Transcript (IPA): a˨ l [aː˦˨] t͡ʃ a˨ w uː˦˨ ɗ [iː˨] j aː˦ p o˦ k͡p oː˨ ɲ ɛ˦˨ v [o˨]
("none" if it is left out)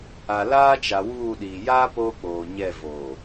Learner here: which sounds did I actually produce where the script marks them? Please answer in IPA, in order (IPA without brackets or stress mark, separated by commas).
aː˦, iː˨, o˨